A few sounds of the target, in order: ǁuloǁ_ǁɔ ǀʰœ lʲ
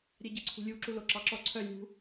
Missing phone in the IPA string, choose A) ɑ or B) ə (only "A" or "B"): A